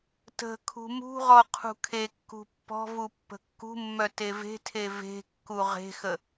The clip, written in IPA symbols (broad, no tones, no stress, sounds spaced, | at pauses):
t ə̤ kʰ ṳ m ṳ ʁ ɔ qʰ ṳ kʰ e kː ṳ pː ɔ̤ v u pː ə̤ kː ṳ mː œ t e v e̤ tʰ e v e̤ kː u ʁ e̤ x ə